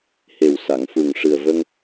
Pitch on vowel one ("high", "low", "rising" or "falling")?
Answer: low